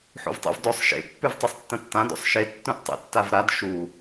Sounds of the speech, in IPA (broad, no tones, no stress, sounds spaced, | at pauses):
ħ ṵ v tˤ o̰ v d o sˤ ʃ ḛ pː ʉ v tˤ e sˤ tː ɐ̃ tː ã d o̰ sˤ ʃ e tː ũ ʔ tˤ ḛ tː a v ɾ a d ʃ u